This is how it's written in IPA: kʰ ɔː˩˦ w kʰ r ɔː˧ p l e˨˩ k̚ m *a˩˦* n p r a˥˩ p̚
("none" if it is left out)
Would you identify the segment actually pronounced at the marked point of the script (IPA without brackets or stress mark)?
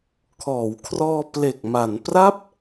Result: a˩˦